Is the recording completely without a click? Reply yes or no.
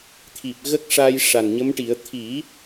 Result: yes